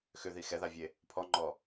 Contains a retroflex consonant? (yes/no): no